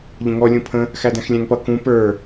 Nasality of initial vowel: nasal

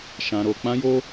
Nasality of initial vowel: nasal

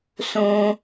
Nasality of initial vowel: nasal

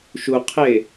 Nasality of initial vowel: oral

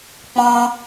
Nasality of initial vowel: nasal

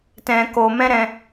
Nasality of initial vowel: nasal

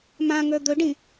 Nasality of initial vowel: nasal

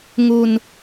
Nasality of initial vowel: oral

